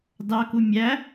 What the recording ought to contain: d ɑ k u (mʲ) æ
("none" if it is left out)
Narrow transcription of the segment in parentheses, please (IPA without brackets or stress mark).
mʲ